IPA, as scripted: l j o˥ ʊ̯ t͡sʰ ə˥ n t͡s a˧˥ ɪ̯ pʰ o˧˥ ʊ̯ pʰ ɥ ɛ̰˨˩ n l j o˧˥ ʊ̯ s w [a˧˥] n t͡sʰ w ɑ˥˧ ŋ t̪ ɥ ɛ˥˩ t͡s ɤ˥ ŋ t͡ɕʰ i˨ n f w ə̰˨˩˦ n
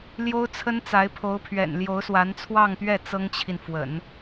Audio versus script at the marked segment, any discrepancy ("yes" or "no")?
no